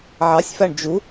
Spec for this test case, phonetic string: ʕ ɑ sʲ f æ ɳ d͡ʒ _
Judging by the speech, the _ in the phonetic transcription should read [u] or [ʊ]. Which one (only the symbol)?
u